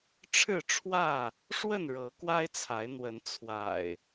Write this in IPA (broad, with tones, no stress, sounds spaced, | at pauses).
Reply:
ʈ͡ʂʰ ɻ̩˥˨ ʈ͡ʂʰ w ä˥˨ | ʂ w ə˥˨ n ɻ ɤ˨˦ k w a˦ ɪ̯ t͡sʰ a˨˦ ɪ̯ n̪ w ə˨˦ n t͡sʰ w a̰˨˩ ɪ̯